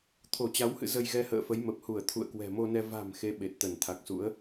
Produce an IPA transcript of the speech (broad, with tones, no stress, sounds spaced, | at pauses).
t̪ʰ o˧˩ t͡ɕ a˨˦ w h ɨ̰˧˨ z ə˧ j ɣ ɛ˧ h ə̰ː˧˨ f ə˨˦ j m ə˨˩ p̚ h u˧˩ ə̯ t̪ʰ ṵ˧˨ ə̯ k w ɛ̤˨˩ m o˧ n ɛ˧ v a̤˨˩ m x e˨˦ ɓ e˨˩ t̚ t̪ ə˧˩ n t̪ʰ a˨˩ k̚ s ṵ˧˥ ə̯